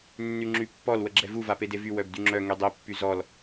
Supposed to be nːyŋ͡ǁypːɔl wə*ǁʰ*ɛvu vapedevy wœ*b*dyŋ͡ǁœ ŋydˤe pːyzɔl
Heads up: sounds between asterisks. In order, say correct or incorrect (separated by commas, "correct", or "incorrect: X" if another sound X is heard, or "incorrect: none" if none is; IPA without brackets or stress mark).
incorrect: ɡ͡ǁ, correct